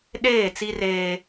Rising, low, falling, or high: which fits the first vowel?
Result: falling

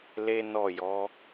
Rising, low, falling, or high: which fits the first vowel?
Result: high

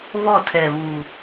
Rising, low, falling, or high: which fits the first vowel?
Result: falling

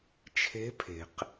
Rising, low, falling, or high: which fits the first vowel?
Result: rising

